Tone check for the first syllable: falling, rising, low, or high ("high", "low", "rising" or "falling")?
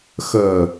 low